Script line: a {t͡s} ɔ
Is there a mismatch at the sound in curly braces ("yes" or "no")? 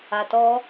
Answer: yes